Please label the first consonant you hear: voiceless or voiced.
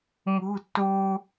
voiced